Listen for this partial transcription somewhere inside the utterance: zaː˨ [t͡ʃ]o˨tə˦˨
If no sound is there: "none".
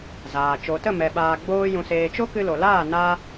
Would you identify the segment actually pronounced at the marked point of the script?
t͡ʃ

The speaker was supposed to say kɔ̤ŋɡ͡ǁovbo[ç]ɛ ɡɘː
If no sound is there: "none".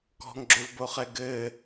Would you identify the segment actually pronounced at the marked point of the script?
χ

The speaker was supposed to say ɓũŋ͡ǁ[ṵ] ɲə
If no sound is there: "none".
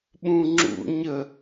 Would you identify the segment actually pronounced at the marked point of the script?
ṵ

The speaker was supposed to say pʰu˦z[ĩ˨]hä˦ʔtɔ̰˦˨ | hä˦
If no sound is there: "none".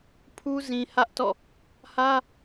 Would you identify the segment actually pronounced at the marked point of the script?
ĩ˨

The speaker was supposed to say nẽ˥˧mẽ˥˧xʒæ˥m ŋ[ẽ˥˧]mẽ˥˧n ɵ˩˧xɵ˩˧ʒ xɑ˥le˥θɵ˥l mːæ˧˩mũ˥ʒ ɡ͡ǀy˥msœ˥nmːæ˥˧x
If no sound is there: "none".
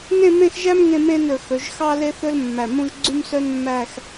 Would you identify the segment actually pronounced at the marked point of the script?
ẽ˥˧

